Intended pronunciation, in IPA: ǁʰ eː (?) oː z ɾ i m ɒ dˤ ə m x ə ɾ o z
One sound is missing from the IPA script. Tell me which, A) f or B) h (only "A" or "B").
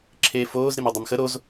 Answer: A